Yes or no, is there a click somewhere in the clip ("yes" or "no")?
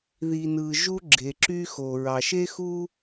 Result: yes